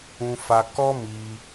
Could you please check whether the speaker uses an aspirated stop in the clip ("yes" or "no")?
no